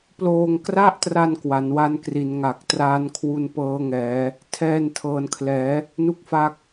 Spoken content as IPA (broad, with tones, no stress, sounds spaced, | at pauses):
p l oː˧ ŋ k r a˥˩ ʔ t r a˧ n k w a˩˦ n w a˦˥ n k r i˩˦ n ŋ a˨˩ k̚ t r aː˦˥ n kʰ w u˧ n p ɤː˦˥ ŋ ɛː˩˦ | tʰ ɛː˧ n tʰ ɤː˩˦ n kʰ l ɛː˩˦ | n u˥˩ k̚ f a˦˥ k̚